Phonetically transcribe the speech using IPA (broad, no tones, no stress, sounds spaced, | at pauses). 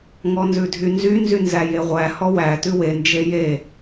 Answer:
ŋ ɔ n z ʉ dʱ y n z y n z y n z æ j e ʁʷ æ h ɔ w æ t ʉ w e n d͡ʒ e j e